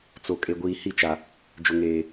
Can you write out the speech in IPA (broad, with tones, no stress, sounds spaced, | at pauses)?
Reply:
t͡s o˨ kʼ e˨ ɡʷ iː˨ h i˦˨ t͡ʃ a˨ | d͡ʒ ʊ˨ ŋ eː˨